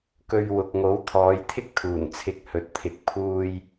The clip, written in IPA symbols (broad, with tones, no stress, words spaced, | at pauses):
kɵ˧ɥwʊ˨k̚ ŋo˨˥wt̪ʰɔː˨˧jt̪ʰɪ˥k̚ t̪ʰuː˨˩nt͡sʰɪ˨˥k̚ hɵ˨t̚t̪ʰɪ˨˥k̚pʰuː˧j